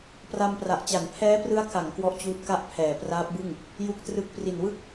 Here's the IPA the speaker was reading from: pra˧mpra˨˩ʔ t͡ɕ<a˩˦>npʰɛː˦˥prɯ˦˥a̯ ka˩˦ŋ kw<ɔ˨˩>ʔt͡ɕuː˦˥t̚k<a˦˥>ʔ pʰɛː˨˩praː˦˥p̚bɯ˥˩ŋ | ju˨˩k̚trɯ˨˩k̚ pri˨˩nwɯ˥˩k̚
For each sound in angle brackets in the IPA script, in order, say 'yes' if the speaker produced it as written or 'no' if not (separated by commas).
yes, no, no